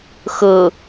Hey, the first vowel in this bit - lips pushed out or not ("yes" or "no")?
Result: no